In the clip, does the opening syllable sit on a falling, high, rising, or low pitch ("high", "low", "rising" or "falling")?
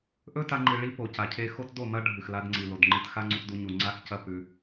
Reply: high